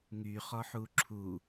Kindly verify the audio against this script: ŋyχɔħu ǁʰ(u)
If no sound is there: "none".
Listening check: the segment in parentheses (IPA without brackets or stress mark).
u